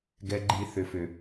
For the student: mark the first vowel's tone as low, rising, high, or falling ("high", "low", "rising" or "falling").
low